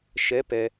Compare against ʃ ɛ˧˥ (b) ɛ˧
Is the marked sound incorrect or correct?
incorrect